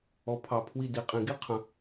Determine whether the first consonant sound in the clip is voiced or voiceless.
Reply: voiceless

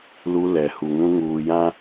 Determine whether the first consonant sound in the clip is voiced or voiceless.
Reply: voiced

